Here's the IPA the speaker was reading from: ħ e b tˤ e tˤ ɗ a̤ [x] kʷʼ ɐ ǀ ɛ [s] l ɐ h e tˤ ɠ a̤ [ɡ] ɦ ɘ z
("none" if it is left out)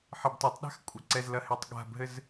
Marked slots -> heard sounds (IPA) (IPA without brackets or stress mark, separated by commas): x, z, b